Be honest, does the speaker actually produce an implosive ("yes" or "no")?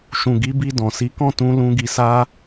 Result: no